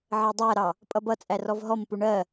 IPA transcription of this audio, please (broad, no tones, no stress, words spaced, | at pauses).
ʕɜdˤæɾɑ | pʼʌbʌt͡sʼæ rɔvɦɔmpu ɳɜ